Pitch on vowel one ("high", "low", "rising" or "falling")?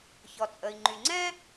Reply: low